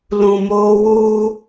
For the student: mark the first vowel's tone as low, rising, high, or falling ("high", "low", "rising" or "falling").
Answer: low